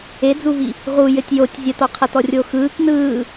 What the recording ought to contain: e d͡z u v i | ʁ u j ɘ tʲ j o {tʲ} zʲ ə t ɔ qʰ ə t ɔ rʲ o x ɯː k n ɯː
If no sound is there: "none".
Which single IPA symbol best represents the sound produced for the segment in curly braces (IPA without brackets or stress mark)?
tʲ